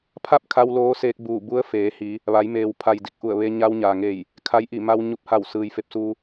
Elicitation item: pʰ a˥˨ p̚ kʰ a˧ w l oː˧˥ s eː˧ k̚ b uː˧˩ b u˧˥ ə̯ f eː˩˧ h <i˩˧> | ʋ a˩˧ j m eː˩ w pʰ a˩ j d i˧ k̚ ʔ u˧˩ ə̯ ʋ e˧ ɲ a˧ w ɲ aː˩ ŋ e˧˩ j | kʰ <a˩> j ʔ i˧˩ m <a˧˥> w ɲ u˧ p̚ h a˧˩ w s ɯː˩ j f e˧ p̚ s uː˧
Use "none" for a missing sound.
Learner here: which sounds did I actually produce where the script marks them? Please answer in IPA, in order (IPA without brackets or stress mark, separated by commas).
i˩˧, a˧˥, a˧